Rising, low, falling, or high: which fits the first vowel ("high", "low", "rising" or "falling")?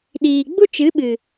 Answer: low